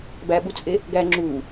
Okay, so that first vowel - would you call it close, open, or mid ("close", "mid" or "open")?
open